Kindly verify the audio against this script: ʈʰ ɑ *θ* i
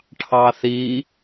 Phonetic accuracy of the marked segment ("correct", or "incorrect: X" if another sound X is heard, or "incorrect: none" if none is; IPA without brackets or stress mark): correct